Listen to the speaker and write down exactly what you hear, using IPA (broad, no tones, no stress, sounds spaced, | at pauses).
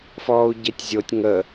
f ɔː u̯ ɟ e tʲ zʲ o tʲ ŋ ə